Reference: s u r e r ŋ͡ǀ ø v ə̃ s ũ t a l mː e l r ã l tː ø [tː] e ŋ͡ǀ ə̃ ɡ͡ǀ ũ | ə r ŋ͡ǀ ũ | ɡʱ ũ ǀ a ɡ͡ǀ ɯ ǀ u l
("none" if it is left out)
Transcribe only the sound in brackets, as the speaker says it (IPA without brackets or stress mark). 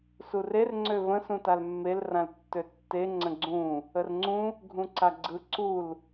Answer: tː